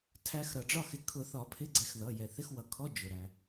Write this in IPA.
tʰ æ˨˦ x ɾ ʌ˩ ɖ͡ʐ ɒ˥˧ x ɪ˨˩˦ kʰ ʊ˨˩˦ θ ɒ˨˩˦ pʰ ɪ˧˥˧ ɡ͡ǀ ɛ˨˦ x ð ʌ˩˧˩ j ɛ˩ θ ɪ˧˥˧ x w ʌ˩ kʰ ɔ˧˥˧ d͡ʒ ʊ˩ ɾ æ˩

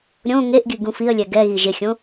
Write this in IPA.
ɾʲ õ ŋ e ʔ ɡ i ɡ ũ f i ə̯ lʲ ɛ ɡ ɛ ɣ i ʒ ɪ xʲ õ

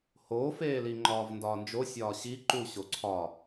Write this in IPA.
h oː f eː l i ŋ͡ǃ ɒː v n d ɒː n d͡ʒ o sʲ ɒː ɕ i ǃ u ɕ o ǀʰ ɒ

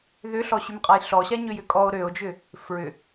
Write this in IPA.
ð ʏ ɬ ɔ ɕ y m qʼ a j ɬ ɔ ɕ a ɲ ø j ʏ kʼ ɔ o̯ ɾ ø o̯ d͡ʒ ʏ | f ɹ ʏ

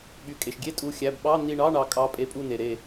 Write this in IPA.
ɓ y˩˧˩ kʼ e˩ ʃ ɡʲ e˧˥˧ tʼ u˩˧˩ xʲ æ˩˧˩ b ɓ ɑ˧˥˧ n i˧˩ ɳ ɑ˧˥˧ ɳ ɑ˩˥ kʼ ɑ˩˥ pʼ e˩˥ pʼ u˧˩ n e˩ ɾ e˧˩

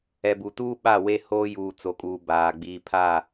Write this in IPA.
ɛ˨ b u˨ t uː˦ ɓ a˦˨ w e˦ h oː˦ j uː˨ t͡s o˨ kʼ uː˨ b aː˨ ɡ͡b iː˨ pʰ a˦˨

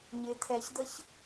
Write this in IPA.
ɲ ɪ t̪ʰ ɛ ç d̪ ə ç

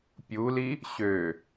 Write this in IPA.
pʲ u l i | ɕ ø

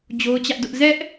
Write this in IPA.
d͡ʑ o˦ ʊ̯ t͡ɕ ä˦ ʔ d ʊ˦ ʔ z ɛ˦ ʔ

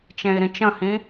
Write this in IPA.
t͡ʃ ẽ i̯ ɾ ĩ t͡ʃ ə̃ h ĩ

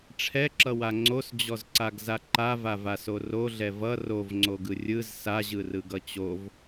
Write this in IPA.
ʈ͡ʂʰ ɛ ǁ ʌ w a ŋ͡ǀ o s d͡ʑ ɔ z ǀ a ɡ z a ǃ a v a v a s o r o ɮ ɛ v ʌ r o v ŋ͡ǀ o ɡ ɯ rʲ ɯ z s a ʑ ɯ r ɯ ɡ ʌ t͡ɕ o v

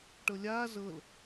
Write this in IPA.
ʈ ɤ lʲ aː z ɤ l

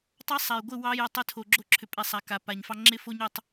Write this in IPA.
tˤ ɑ˦ sˤ a˨ j ɡʷ ɪ˦˨ w ɑ˦ j ʏ˨ tˤ ʏ˦ tʰ o˨ ɡ͡ǁ o˦ ǁʰ ʏ˨ pʼ ɛ˨ sˤ a˨ k a˨ p a˨ ɲ f ɑ˦ ŋ͡ǁ ɪ˦ f o˦ ɲ ʏ˦ tˤ

